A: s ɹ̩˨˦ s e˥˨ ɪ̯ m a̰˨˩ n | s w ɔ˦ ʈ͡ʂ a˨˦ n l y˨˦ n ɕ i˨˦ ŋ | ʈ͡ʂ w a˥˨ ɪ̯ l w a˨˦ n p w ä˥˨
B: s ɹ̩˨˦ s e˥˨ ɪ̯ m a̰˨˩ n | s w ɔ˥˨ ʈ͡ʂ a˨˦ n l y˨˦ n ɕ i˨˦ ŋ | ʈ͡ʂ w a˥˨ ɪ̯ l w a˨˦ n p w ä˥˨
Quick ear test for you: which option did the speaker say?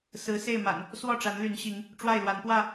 B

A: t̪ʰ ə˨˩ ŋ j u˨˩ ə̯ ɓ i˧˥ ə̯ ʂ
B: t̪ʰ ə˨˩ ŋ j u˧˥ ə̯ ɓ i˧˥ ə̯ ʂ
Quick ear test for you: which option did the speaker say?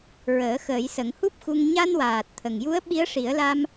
B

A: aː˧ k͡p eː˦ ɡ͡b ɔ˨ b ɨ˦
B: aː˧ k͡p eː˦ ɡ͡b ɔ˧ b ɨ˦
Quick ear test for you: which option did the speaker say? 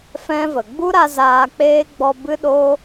B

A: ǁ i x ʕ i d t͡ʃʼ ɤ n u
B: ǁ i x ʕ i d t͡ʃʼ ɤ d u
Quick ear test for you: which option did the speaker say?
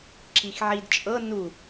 A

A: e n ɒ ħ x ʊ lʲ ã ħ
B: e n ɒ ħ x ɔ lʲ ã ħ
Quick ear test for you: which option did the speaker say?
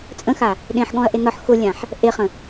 A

